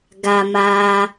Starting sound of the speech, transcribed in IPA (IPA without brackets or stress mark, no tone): ɡ